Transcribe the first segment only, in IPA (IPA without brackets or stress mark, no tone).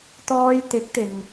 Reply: t̪